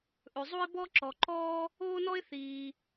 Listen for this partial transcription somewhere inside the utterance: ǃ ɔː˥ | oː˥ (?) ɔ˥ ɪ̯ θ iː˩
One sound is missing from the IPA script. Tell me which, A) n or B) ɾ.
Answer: A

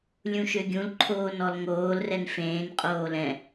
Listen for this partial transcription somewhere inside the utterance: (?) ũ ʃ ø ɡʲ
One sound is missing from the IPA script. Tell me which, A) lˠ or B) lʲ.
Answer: B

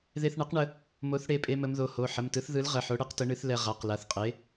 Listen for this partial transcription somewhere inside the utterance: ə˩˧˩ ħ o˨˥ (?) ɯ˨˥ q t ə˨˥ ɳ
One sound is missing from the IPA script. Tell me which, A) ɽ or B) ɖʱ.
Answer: A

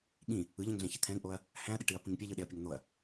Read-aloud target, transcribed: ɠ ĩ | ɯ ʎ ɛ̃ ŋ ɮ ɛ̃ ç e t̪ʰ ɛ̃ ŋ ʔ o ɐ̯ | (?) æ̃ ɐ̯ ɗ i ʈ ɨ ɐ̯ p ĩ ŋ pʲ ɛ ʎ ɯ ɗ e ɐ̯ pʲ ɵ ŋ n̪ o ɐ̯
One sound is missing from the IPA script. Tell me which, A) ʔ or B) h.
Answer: B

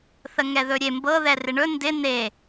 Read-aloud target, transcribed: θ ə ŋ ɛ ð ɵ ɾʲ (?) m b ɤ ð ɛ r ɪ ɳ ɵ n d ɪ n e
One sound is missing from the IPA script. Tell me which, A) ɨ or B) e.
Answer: B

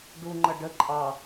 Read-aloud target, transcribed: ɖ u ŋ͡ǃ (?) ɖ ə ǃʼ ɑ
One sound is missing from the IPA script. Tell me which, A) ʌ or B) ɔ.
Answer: A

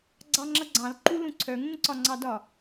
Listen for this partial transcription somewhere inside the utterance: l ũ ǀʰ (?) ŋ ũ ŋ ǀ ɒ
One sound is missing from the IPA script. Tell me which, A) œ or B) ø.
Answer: A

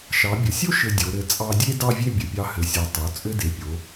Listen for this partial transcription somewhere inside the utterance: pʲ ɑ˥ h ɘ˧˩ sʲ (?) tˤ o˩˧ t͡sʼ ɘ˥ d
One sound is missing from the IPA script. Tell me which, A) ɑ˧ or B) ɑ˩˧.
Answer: A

